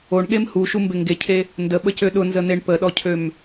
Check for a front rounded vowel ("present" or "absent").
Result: present